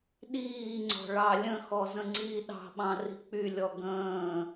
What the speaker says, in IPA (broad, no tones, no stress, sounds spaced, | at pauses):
ɗ iː ŋ͡ǀ ɔ̤ ɭ ɑ lʲ ə̃ x ɔ z ə̃ ŋ͡ǀ iː ɗ ɑ̤ ɓ ɑ̃ r i̤ k͡p y lʲ ɔ ɡ ə̃ː